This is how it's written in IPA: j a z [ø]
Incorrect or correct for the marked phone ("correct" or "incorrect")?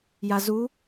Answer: incorrect